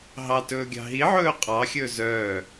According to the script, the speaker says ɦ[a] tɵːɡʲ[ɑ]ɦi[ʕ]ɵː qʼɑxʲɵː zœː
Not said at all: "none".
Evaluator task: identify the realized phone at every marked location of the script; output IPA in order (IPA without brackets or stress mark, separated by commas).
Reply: ɑ, ɑ̤, ʕ